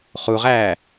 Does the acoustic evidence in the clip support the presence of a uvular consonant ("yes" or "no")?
yes